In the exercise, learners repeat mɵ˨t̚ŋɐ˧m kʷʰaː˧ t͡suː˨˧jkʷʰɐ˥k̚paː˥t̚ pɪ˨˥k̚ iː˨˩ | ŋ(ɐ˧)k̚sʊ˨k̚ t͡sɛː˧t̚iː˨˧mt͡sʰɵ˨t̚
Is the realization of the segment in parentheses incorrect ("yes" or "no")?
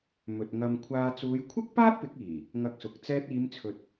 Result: no